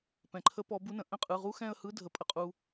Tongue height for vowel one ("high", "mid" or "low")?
mid